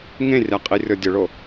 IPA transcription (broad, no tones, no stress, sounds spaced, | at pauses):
ŋ ẽ rʲ a qʼ i rʲ ɔ dʲ ʊ ɭ o